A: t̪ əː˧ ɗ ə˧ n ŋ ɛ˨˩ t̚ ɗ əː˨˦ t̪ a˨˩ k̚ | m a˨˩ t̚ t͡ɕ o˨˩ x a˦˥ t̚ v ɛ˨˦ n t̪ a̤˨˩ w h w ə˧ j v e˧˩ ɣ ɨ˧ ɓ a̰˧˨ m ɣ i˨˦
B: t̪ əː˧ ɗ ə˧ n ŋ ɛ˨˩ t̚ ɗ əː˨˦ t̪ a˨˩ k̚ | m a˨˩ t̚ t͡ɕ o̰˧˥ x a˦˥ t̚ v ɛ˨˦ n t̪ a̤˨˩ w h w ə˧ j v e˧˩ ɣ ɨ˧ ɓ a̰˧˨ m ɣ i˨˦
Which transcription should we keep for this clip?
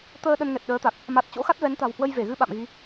B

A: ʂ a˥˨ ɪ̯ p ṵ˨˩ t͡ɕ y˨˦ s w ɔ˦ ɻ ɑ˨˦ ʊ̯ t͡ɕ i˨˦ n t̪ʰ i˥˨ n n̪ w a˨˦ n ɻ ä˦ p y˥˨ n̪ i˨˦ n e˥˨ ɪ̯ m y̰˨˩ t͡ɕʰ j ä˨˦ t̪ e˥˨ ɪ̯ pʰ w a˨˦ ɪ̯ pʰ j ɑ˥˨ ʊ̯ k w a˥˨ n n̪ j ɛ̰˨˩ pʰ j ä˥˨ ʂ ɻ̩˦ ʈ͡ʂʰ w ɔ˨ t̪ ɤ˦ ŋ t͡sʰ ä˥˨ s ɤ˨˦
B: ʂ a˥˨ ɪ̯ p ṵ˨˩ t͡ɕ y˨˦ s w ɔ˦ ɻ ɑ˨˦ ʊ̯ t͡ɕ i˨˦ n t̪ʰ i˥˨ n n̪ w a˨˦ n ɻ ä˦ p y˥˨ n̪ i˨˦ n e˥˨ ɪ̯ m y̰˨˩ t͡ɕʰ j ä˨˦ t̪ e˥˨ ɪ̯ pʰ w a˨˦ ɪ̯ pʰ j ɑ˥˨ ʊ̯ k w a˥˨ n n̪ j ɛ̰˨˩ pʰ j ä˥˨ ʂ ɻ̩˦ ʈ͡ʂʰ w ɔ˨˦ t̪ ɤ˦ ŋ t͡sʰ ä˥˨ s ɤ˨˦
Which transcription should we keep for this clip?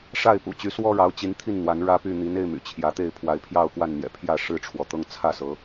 A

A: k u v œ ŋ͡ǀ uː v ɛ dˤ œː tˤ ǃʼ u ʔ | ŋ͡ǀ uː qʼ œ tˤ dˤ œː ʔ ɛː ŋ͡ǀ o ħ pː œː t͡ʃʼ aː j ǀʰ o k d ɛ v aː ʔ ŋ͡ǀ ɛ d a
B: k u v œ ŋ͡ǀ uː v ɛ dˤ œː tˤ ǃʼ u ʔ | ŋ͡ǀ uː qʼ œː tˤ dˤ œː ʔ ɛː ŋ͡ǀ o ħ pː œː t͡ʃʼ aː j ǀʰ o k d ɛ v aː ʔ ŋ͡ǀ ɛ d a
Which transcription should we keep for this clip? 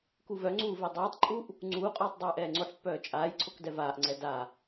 B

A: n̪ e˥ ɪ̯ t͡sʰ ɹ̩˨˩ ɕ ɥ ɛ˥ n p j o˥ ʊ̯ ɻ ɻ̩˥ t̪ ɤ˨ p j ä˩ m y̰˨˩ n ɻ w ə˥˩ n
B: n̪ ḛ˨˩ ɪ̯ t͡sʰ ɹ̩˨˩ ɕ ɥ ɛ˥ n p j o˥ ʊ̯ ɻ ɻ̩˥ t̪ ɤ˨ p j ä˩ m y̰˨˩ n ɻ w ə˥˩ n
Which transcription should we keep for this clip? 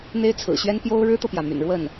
A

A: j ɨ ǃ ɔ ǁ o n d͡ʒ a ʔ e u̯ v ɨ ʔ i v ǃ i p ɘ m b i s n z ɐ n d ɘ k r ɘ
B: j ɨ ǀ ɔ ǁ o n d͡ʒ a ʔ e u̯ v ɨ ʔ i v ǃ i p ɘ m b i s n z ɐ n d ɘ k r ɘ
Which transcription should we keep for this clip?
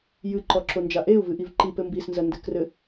A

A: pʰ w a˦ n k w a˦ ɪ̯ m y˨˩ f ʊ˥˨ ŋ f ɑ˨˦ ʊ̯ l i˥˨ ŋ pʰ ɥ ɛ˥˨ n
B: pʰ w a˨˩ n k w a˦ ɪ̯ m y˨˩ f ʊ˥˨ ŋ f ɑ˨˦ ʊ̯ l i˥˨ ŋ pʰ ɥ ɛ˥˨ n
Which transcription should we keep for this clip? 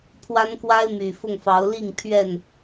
A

